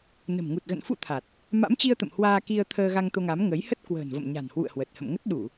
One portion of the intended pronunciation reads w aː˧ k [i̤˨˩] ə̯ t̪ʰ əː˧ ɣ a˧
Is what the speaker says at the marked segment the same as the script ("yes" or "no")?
no